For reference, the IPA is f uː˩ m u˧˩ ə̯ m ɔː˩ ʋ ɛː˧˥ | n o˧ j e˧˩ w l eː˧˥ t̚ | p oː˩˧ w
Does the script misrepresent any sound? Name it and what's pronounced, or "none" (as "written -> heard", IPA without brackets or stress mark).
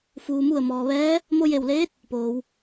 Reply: n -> m